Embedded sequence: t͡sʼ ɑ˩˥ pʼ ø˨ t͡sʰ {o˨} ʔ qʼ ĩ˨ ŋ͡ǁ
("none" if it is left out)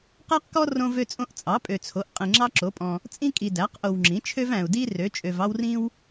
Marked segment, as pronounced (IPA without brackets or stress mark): o˩˥